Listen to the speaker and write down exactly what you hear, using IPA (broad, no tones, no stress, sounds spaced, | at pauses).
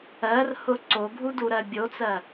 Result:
ɜ r h ʊ ǀ o ɡʱ u d u ɾ ɜ bʲ o t͡s ɜ